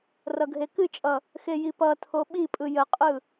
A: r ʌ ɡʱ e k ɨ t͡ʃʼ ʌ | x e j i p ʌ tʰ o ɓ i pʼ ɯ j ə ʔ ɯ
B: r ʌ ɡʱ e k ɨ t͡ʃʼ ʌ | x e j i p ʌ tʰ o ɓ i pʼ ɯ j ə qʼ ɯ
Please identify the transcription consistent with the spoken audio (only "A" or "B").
B